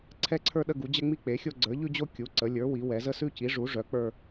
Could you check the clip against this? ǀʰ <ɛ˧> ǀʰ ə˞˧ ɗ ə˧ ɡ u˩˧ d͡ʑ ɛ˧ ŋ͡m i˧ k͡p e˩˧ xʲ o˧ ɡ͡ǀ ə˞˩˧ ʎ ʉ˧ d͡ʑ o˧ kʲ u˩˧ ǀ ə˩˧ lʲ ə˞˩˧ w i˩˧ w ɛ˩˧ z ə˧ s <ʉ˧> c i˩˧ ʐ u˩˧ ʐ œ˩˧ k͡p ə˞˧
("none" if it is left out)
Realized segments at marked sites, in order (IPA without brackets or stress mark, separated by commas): ɛ˧, ʉ˧